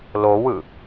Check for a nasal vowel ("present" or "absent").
absent